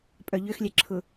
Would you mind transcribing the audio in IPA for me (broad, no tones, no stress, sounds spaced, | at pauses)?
pʼ œ ʎ ʏ x lʲ ɛ ǁʰ ʊ